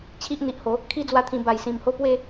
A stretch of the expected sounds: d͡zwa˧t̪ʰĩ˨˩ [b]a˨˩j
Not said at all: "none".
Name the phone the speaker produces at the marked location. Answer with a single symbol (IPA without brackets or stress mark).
b